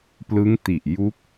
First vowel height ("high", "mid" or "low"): high